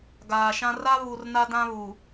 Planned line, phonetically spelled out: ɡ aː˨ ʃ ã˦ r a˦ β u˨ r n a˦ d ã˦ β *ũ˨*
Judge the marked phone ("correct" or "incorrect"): incorrect